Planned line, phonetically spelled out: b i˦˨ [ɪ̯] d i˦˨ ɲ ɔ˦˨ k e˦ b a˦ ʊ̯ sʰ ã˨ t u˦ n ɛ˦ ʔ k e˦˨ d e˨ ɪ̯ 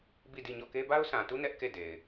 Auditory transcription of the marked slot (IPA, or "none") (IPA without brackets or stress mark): none